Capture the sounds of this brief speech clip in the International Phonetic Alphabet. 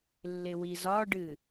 lː ɪ w i z ɒ ɖ ɨ

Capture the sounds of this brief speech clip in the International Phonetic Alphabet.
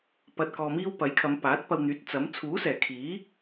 p ɐ˨ t̚ k ɔː˨ m iː˥ w p ɐ˨˥ j kʰ ɐ˨˧ m p aː˨˥ t̚ p ɐ˧ w n̪ yː˨˥ t̚ t͡s ɐ˨˥ m t͡sʰ uː˨˥ s ɛː˨˩ kʰ iː˨˥

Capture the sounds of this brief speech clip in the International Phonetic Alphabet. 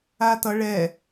a t ʌ ɭ ɛ

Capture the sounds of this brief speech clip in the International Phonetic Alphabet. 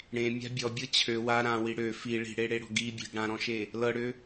ɽ ẽ mʲ a̤ bʲ ɔ bʲ ɤ t͡ɕʰ ø w a ɾ ã w i ɽ ø f i ɭ i̤ ɽ e ɽ e ɽ ɔ̤ ɡ i bʲ e̤ ɡ ɽ ã ɾ ɔ̃ ʃ e | l ɤ ɽ ø

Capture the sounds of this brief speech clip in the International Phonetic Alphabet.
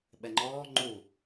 ɓ ɛ ŋ͡ǃ ɔː ŋ͡ǃ u

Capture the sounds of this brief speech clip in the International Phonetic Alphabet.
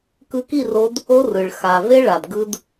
k ɯ˧ k i˦˨ r o˧ d | o˦ r ɯ˨ ɭ x a˨ v e˦ ɭ a˨ d ɡ ɯ˦ d

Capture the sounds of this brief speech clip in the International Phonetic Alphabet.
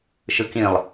ʃ ɯ k ĩ lˠ

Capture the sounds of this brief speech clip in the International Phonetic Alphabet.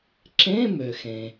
ǁ ẽ˧˥˧ m ø˩ x ẽ˩

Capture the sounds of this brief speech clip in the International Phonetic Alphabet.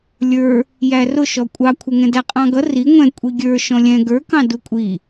lʲ ə˞ | j æ r ʊ ʃ ɔ kʷʼ ɑ kʷʰ ɛ ŋ ɛ̃ d æ qʼ ɑ̃ ɡ ʌ r i ŋʷ ɛ̃ kʷʼ i ɡʲ ə˞ ʃ ɔ̃ lʲ ɛ̃ ɡ ə˞ k ɑ̃ d u kʷʼ i

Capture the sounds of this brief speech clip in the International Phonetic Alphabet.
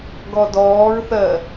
ɡ ɔ d ɔː ɹ θ ɜ

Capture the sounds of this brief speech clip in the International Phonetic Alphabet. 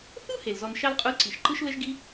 θ u˥ h e˩ l z ɔ˧ n ʃ ɑ˥ l qʼ u˧˥ l ǀ i˩ ʃ ǃ ɯ˥ ʃ l ə˥ ʒ ɡ i˥

